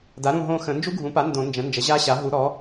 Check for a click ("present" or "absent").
absent